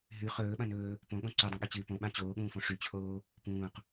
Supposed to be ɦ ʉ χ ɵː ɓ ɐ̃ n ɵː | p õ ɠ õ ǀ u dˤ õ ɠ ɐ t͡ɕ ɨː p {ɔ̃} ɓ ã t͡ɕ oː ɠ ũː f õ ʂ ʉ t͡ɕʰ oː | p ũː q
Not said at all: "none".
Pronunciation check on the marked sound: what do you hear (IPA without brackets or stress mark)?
õ